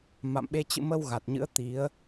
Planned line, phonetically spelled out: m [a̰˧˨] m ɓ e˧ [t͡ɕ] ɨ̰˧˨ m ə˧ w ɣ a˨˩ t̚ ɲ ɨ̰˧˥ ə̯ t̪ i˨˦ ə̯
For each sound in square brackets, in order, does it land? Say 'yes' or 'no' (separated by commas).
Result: yes, yes